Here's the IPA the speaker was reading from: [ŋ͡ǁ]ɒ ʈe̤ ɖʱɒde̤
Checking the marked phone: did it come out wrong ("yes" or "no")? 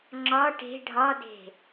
no